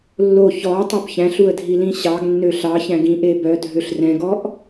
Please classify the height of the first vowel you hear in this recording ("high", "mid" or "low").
mid